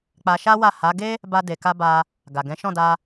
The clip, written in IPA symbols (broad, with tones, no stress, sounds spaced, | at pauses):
k͡p a˧ ʃ a˦ w a˦˨ h a˨˦ ɡ e˦ | b a˧ d e˨ k a˧ b a˧ | ɡ a˨ ɡ ɛ̃˨˦ ʃ ɔ̃˦˨ d a˧